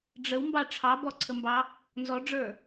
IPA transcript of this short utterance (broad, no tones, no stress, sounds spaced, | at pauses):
ɖ͡ʐ ə w m b ɑ ʈ͡ʂʰ ɑ b ɔ ǀʰ ə m b ɑ | n z ɔ ɖ͡ʐ ə˞